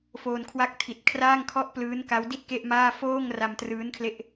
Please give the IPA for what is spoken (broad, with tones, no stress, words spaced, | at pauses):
foː˧nkʰwa˦˥k̚tʰi˨˩t̚kʰraː˥˩ŋ kʰɔ˥˩ʔplɯː˦˥nka˦˥wdi˥˩t̚ ke˥˩ʔmaː˥˩ foː˥˩ŋ ra˧mtrɯː˦˥nkʰle˦˥ʔ